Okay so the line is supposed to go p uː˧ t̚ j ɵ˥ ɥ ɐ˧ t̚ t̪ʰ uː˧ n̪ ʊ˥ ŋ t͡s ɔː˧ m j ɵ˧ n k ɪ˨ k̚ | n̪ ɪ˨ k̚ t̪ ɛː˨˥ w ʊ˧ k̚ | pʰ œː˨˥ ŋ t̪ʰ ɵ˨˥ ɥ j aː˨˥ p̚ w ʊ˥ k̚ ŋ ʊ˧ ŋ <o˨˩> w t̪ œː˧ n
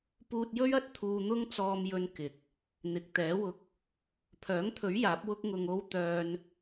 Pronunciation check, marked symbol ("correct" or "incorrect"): incorrect